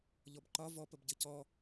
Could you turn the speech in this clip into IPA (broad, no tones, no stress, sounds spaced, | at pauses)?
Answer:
ʎ ɔ b ǃ ɒ v ɔ p ə b ɟ ɘ c ɔ